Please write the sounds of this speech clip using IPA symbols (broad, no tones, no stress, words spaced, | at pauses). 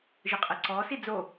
ʒɯqʼɛǀɔːs id͡zo